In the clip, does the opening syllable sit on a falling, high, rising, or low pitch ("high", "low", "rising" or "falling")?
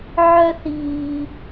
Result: high